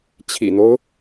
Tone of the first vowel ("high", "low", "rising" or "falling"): low